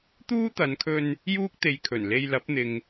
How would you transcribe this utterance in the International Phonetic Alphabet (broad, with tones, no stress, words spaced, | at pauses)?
t̪uː˥t̪ɐ˨˧nkʰɵ˧n | juː˥k̚t̪e˨˧jkʰɵ˨˩n le˧jlɐ˨˥p̚n̪ɪ˨ŋ